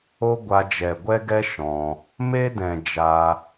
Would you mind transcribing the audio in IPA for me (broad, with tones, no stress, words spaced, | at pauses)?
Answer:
o˦ɡʷa˧d͡ʒɛ˨ ɡʷɛ˦ɡɛ˦ ʃɔ̃˧ | me˦dɛ̃˨ d͡ʒa˧